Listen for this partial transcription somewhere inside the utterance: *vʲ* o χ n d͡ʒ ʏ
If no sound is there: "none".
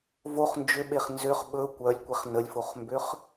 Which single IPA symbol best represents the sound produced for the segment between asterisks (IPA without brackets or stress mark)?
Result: v